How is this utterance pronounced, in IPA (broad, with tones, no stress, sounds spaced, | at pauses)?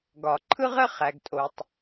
ɡ ɒ˩ ǃʰ ɯ˥ ʁ ɘ˥ χ æ˩ ɡ tʼ o˩ tˤ